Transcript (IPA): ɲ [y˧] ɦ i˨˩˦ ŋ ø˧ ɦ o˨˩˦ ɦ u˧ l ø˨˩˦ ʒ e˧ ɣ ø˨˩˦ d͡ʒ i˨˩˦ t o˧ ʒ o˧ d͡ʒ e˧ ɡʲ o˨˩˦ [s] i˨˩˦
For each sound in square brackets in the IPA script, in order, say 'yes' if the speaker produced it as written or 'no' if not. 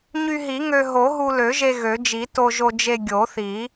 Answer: yes, no

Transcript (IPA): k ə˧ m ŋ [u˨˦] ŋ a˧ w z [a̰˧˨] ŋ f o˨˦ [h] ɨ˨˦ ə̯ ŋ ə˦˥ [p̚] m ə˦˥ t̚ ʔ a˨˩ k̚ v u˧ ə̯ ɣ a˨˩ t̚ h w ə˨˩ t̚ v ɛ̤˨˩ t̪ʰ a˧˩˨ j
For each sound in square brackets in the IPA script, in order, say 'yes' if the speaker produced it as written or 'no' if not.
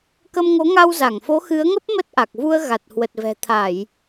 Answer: no, no, no, yes

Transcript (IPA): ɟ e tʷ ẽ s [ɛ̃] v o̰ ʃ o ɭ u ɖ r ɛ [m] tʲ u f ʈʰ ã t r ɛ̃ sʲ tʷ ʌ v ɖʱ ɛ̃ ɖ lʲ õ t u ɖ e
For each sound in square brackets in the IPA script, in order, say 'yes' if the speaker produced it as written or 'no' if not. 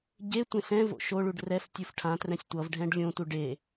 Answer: yes, no

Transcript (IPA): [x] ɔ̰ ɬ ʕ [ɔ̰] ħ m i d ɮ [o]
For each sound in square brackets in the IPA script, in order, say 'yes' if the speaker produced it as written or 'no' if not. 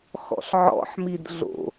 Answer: yes, yes, no

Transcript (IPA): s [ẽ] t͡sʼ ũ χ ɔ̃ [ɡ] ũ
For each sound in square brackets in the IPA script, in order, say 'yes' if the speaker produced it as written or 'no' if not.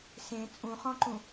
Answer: yes, no

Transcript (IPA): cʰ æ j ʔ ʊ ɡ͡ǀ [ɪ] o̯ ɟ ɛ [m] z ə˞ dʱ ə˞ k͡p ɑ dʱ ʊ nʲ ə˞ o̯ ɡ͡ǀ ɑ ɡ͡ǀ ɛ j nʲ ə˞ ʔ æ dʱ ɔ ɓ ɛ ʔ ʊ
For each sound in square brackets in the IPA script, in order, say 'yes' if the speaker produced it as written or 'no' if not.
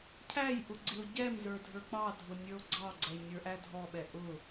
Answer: yes, yes

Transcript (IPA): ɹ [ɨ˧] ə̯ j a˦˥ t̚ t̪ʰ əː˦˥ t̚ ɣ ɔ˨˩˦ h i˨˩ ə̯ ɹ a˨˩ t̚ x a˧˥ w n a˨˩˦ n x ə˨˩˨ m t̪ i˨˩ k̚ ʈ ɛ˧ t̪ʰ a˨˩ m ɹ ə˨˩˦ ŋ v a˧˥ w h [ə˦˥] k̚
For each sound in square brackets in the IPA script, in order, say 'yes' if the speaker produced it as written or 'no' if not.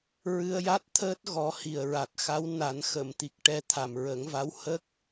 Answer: yes, yes

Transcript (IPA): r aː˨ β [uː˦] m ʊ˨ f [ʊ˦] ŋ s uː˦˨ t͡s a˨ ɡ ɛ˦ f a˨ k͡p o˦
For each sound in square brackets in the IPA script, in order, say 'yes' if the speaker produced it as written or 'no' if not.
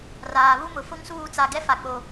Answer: no, yes

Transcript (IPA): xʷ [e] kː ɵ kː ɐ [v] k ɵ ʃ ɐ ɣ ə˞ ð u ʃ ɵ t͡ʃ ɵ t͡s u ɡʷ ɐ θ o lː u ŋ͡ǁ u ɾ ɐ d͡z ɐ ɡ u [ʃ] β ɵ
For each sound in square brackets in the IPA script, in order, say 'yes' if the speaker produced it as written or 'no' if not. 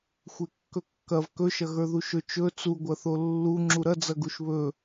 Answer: yes, yes, yes

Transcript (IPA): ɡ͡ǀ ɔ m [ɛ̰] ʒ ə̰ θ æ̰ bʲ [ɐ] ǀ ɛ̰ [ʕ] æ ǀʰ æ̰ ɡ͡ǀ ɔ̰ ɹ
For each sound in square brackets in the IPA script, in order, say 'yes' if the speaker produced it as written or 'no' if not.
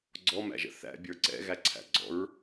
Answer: no, no, no

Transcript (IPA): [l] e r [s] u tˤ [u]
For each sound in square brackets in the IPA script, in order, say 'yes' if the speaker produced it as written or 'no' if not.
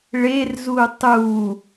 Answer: no, no, yes

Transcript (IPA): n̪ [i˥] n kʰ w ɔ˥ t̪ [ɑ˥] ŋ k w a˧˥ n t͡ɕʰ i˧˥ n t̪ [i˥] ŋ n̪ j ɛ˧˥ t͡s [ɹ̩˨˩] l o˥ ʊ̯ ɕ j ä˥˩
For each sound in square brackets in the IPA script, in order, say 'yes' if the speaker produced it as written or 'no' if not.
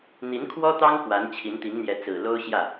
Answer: no, yes, no, yes

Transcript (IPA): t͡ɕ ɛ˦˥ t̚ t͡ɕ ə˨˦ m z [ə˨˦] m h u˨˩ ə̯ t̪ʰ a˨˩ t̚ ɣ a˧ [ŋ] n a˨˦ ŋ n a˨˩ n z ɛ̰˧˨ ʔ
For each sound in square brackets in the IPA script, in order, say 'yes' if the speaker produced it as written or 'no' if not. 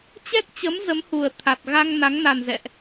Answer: yes, yes

